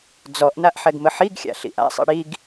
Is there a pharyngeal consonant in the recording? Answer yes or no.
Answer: yes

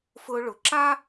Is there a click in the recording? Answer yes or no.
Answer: yes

